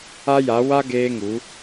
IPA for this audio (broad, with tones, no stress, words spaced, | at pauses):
a˦ja˨˦ wa˦ ɡeː˦ŋu˨˦